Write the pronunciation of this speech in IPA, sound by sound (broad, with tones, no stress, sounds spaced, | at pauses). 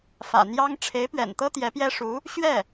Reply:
f ä̰˨˩ n̪ j ɑ˥ ŋ ʈ͡ʂʰ e˧˥ ɪ̯ p ɥ ɛ̰˨˩ n t̪ ɤ˥ t̪ j ɛ˧˥ p j ɛ˥ ʂ u˧˥ | ɕ ɥ ɛ˥˩